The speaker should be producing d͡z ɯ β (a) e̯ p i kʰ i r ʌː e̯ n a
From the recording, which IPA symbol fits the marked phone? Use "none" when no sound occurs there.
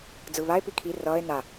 a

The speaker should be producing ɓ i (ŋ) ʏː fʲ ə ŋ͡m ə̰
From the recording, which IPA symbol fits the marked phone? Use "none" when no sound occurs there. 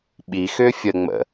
x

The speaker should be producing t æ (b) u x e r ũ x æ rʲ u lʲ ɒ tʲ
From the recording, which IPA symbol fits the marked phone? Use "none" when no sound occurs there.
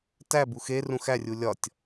b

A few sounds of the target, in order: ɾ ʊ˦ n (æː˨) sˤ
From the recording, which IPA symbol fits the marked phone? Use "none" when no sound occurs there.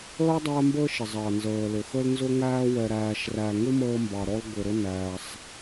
æː˨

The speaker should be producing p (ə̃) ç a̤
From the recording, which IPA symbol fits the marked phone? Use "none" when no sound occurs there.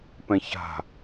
ɛ̃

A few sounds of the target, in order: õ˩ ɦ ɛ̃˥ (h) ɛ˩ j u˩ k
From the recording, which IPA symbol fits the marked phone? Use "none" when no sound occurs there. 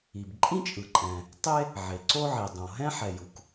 ħ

